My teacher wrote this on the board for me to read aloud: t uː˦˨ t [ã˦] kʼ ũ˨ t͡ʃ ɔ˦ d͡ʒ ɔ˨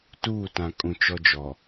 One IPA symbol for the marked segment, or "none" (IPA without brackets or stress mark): ã˨